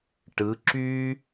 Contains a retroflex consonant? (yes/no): yes